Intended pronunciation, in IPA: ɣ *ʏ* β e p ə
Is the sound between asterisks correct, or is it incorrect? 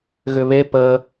correct